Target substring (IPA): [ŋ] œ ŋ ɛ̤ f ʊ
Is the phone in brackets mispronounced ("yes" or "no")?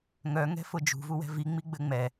no